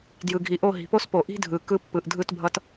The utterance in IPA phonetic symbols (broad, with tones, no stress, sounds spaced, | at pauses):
d j ɯ˨ ɡʱ i˨ ʔ o˦˨ ɦ i̤˨ p o˦ s p o˨ ʔ i̤˦ dʱ ɯ˨ k ɯ˦ pː ɯ˨ ʔ dʱ ɯ˦˨ t bʱ ʌ˨ t